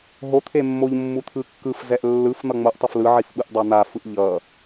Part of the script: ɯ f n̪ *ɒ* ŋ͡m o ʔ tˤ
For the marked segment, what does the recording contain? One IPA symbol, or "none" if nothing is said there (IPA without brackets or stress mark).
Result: ʌ